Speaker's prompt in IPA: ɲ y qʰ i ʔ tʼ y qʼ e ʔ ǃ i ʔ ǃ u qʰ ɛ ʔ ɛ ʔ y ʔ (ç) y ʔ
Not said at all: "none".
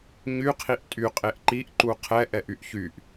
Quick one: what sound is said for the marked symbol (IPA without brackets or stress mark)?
ç